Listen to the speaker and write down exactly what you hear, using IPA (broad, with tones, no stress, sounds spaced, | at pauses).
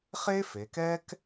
χ e˥ f e˩˧ k ɛ˥ k